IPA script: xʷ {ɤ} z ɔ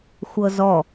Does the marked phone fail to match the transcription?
no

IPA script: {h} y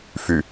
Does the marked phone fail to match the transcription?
yes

